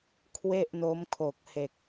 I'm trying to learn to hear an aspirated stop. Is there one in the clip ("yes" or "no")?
yes